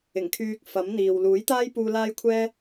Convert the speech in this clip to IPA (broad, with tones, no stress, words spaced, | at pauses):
ɪ˨˩ŋkʰyː˧k̚ fɐ˨˥m n̪iː˨w luː˨˥jt̪aː˥jpuː˧ laː˥jkʷʰɛː˥